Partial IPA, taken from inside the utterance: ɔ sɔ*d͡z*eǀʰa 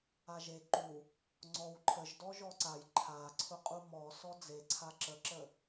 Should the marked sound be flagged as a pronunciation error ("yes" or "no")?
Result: no